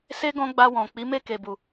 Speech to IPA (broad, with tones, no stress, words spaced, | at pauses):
se˦ ɡɔ̃˦ɡ͡ba˧ wɔ̃˨ k͡pi˨˦me˦˨ke˨bu˨